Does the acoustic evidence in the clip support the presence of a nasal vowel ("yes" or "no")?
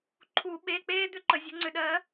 no